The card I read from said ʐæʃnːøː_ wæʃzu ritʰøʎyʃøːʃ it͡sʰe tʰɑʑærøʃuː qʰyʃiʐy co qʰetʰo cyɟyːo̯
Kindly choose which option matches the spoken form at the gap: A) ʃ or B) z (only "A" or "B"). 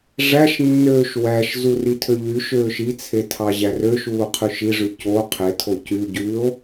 A